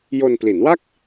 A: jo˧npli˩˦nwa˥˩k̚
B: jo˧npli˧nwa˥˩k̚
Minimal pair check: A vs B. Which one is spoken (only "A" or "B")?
A